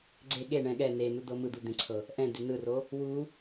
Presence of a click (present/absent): present